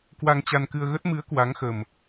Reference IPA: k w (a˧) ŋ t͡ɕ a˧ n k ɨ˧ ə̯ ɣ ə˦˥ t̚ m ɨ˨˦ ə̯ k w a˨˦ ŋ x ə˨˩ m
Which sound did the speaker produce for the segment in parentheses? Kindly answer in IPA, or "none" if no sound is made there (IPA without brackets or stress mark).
a˧